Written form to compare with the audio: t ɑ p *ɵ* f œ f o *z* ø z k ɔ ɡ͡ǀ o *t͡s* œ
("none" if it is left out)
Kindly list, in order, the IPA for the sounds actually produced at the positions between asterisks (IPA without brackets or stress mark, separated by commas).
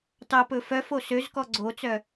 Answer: ɵ, s, t͡s